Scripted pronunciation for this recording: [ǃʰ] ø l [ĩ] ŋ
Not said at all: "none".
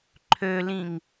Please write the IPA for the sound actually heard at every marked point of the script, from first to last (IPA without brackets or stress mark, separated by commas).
ǃʰ, ĩ